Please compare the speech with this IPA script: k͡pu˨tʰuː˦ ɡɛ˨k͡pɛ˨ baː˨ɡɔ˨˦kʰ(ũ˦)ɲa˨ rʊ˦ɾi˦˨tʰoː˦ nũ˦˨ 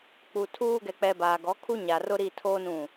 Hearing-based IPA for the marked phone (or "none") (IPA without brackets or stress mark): u˦